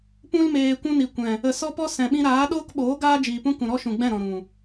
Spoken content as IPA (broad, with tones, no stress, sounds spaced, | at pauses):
p ũ˧ l m eː˨ kʷ ũ˧ n i˨ kʷ ɛ̃˨ | ə˨ s ɔ˦ p ɔ˦ s ɛ̃˨ ɓ ĩ˧ ɾ aː˨˦ ɗ oː˦ k ɓ oː˨˦ ɡ aː˦ d͡ʒ iː˨ p ũ˦ k ũ˨ ɾ ɔ˦ ʃ ũ˨ ɡ͡b ɛ̃˦˨ ɾ ɔ̃˨ ɾ ũ˨